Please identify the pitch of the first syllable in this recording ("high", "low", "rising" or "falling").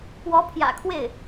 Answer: rising